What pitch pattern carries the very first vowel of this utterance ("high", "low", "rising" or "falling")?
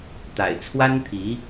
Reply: low